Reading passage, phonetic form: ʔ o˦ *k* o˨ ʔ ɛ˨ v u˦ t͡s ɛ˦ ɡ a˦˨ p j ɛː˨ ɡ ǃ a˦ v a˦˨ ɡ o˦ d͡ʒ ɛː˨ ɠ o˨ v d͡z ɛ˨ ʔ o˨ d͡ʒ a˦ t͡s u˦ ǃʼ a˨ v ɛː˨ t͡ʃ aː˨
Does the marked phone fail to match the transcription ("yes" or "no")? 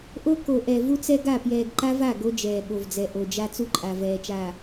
no